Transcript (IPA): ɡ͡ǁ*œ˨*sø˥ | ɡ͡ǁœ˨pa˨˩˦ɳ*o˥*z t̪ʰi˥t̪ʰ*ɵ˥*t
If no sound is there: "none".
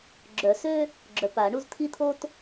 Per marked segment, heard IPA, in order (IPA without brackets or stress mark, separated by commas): œ˨˩˦, u˥, o˥